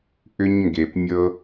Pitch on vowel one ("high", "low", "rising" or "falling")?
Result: high